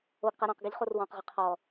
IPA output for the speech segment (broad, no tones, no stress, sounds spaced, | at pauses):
o ɡ q ɛ ɾ ɔ̃ q ɡ ɛ ʎ χ o r w ɔ̃ q ʁ ɪ qʰ ɔ